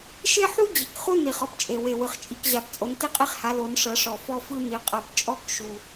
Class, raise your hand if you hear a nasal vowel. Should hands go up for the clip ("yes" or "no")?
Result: no